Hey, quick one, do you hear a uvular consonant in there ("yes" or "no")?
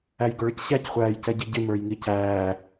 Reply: yes